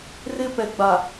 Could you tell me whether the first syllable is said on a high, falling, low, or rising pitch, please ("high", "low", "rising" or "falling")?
high